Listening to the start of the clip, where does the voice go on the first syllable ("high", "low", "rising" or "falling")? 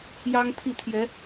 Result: high